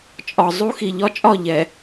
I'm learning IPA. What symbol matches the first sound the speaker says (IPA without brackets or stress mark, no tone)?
t͡ʃʼ